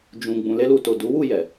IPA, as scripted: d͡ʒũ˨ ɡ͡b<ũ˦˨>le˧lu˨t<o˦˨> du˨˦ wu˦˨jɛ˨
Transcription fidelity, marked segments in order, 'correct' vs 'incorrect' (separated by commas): incorrect, incorrect